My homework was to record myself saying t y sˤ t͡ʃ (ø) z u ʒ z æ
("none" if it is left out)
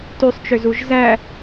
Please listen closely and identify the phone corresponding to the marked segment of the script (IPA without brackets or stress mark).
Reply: ø